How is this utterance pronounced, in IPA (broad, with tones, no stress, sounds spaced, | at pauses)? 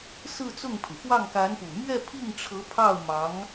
s ɹ̩˥˧ t͡s ʊ˥˩ ŋ pʰ y˩ f w ɑ˥˩ ŋ k a˧˥ n p u˨˩ m ɥ ɛ˥˧ pʰ i˥˩ ŋ ʈ͡ʂʰ ɤ˧˥ pʰ ɑ˥˩ ʊ̯ m ɑ˧˥ ŋ